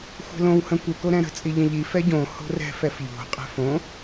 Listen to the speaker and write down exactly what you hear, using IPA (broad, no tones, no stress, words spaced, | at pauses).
xʷɛ̤lõw hə̃kʷə koɾɛ̃ɾə̤ t͡sʼiʎə̃ʎi fɛɟõ ho̤rɛ̤ fɛfʎo̤ qʼɛ̤fõ